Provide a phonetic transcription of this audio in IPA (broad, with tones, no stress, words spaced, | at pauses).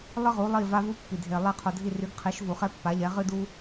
lˠɨ˥ʁu˨˥lˠi˦˨ va˥vu˥pːi˨dʱe˨ lˠe˦˨qʰo˨dʱi˦˨ry˨˥ɡ qʰi˨˥ʃ vu˨χɛ˥pːa˨˥ʎɛ˨˥ ʁɨ˥du˥